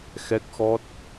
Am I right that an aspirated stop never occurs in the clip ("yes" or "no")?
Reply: yes